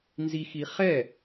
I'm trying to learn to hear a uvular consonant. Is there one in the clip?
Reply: yes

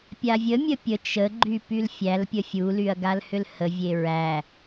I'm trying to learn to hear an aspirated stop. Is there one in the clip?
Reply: no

